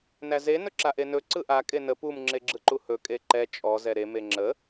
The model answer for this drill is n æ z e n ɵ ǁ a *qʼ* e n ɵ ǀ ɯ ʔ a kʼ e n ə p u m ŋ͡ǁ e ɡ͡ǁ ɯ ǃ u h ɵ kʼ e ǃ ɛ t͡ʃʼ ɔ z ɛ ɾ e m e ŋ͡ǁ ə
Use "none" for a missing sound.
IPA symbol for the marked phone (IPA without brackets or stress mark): ʔ